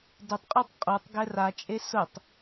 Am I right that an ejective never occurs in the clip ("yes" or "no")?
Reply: no